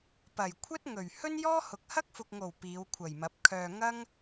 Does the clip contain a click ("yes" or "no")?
no